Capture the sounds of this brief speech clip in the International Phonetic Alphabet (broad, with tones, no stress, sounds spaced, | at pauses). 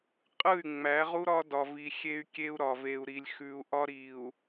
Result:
qʼ ɯ˦˨ y̯ ŋ͡m æ˨˦ ʁ u˦ ɾ ɒ˦ d ɒ˦ v i˦ xʲ e˦ y̯ kʲ e˦ u̯ ɾ ɒ˨ v e˨ u̯ ɾ i˨ lʲ x ʉ˨ u̯ ʔ ɒ˦ ɾ i˨ u̯